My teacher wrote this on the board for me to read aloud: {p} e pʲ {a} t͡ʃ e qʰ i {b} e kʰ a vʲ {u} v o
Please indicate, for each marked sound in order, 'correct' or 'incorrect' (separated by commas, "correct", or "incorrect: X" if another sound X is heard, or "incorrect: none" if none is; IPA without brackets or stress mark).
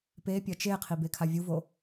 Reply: correct, incorrect: ɐ, correct, correct